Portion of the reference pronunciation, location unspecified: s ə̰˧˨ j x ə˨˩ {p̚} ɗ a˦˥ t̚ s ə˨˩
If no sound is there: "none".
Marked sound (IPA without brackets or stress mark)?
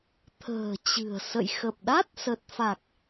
p̚